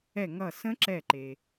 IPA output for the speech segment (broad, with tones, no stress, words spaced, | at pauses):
ɛ˧˩ŋʌ˧˩ sə̃˦˥ǁɛ˧˩ǃe˩